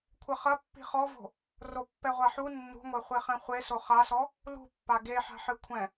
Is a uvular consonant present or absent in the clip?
present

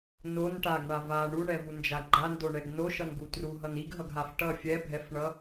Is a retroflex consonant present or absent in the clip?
present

